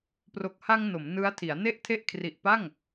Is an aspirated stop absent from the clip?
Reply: no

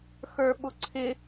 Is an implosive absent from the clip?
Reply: no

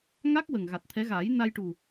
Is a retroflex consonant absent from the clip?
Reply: no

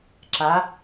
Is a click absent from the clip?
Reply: no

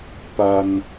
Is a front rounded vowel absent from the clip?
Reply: yes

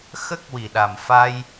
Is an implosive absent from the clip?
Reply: no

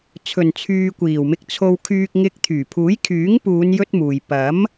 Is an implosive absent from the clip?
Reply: yes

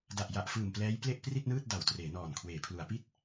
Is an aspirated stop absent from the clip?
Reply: no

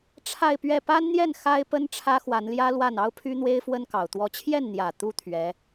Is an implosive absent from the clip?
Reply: yes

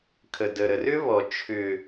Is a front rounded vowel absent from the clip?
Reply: no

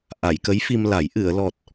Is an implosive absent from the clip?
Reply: yes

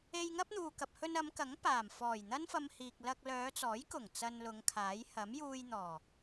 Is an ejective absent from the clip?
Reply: yes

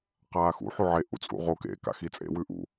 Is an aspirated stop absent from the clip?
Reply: yes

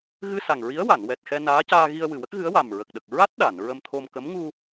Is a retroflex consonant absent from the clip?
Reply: yes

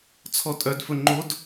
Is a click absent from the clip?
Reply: no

